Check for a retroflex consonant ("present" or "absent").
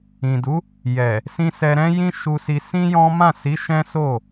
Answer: absent